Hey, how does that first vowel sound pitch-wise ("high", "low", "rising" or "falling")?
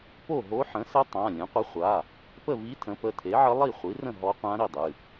falling